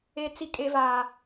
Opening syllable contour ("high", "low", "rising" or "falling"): high